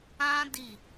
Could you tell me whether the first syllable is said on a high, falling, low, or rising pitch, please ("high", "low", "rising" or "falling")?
high